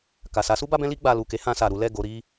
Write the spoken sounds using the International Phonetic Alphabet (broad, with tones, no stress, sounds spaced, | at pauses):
k a˨ s a˨˦ s u˦ b a˦ b ɛ̃˦ l i˦ ɡ͡b a˧ l u˨ k e˨˦ h ã˧ s a˨ ɾ u˨˦ l ɛ˦˨ ɡ o˨˦ ɾ i˦